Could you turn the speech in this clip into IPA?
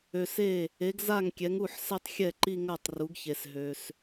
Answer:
ø˨ s e˥˩ | e˩˥ ɡ z a˥˩ ŋ kʲ ɛ˩˥ ŋ u˥˩ ħ s ɛ˥˧ tˤ xʲ ɛ˥˩ ǃ i˥˧ ŋ ɜ˥˩ tˤ r u˩˥ ɡ ç e˨ s ɦ ø˨ s

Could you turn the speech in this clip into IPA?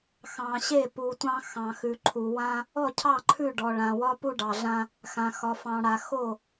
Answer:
x ɑ̃˨ ɕ e˥˩ p u˨ tʷ ɑ̃˦ x ɑ̃˨ x ʉ˨ ǃʰ u˨ w ã˦ | ɔ˥˩ cʰ ɑ˥˩ ǃʰ ʉ˥˩ ɖ ɔ˨ ɭ ã˨ w ɒ˦ p u˦ ɖ ɑ˨ ɮ ã˦ | x ã˨ x ɒ˨ f ɑ̃˨ ɽ a˨ x o˥˩

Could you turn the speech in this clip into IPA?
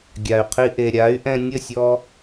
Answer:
ɡʲ a˩ y̯ qʰ i˧ ʔ e˩ ɾʲ a˩˥ y̯ ʔ ɛ̃˧ nʲ ə˥˩ sʲ ɔ˧

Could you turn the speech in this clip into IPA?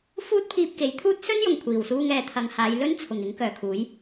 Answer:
f uː˥ t̚ pʰ iː˧ p̚ k e˨˥ j t̪ʰ uː˥ t̚ s ɵ˥ n j ʊ˨˩ ŋ kʷʰ iː˨˩ w s uː˧ ŋ ɛː˨ t̪ʰ ɐ˨˧ ŋ h aː˨˧ j l ɵ˥ n t͡sʰ ʊ˨˩ ŋ ɪ˨˥ ŋ k œː˨ kʰ uː˨˥ j

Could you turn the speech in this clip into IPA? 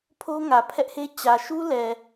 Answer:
pʰ o˦ ŋ ä˨ pʰ ɛ˦ ʔ h e˦ t͡ɕ ä˨ ʃ u˦ l ɛ˨

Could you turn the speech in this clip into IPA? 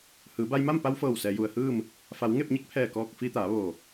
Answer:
h ɯː˩˧ b a˧ j m a˥˨ m p a˧ w f ɤː˧˩ w s ɛː˩˧ j u˩ ə̯ h ɯː˥˨ m | f a˩˧ w ŋ e˥˨ p̚ ɲ e˧˥ k̚ pʰ ɛː˧˩ k ɔː˧˩ k̚ f i˧ t̪ aː˩˧ ʋ o˧˩

